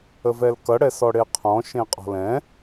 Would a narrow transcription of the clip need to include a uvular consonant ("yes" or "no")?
yes